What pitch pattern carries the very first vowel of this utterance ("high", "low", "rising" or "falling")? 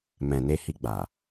low